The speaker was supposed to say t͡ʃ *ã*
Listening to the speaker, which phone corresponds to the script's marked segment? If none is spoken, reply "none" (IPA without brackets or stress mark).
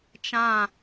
ã